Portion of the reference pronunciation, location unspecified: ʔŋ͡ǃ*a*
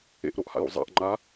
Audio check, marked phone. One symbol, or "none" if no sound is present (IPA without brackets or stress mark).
a